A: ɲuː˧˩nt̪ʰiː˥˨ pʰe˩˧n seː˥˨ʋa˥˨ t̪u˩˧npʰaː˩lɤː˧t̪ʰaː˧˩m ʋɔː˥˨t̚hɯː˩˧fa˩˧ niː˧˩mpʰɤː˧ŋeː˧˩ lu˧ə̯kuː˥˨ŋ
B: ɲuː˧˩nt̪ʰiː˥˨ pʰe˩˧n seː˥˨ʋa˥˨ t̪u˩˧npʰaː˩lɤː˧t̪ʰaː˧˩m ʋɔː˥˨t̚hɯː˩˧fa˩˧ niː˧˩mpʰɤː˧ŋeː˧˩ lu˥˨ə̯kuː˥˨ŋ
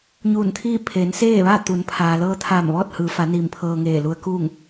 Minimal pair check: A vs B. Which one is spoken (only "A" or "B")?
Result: A